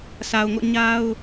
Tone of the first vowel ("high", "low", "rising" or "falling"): low